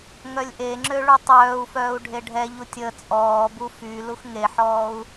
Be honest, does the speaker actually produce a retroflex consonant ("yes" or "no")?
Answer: yes